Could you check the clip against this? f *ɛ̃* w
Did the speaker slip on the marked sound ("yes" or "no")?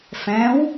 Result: no